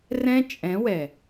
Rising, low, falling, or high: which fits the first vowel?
high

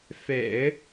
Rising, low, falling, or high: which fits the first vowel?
low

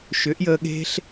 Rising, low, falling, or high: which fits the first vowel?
rising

